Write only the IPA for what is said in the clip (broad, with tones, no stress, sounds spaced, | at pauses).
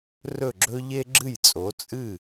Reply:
r ɵ˥˩ ɡ͡ǁ ɵ˥ ʎ e˥ ɡ͡ǁ ɨ˥˩ j t͡sʼ o˩˥ t͡sʼ ɨ˥˩